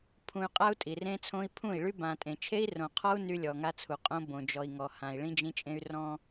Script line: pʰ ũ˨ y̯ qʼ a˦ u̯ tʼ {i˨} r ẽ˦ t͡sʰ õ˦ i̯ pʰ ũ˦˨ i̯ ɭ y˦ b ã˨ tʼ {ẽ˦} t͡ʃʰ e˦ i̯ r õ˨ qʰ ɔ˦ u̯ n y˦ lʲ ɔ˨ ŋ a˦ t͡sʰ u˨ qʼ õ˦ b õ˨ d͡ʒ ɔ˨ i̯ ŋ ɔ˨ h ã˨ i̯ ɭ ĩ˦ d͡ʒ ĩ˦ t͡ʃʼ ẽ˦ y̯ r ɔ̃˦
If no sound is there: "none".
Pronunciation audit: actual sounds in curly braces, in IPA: i˨, ẽ˨

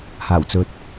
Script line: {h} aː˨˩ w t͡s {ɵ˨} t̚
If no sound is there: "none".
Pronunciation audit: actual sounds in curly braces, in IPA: h, ɵ˨

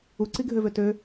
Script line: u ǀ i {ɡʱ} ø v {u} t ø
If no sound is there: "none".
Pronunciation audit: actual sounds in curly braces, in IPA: ɡʱ, ø

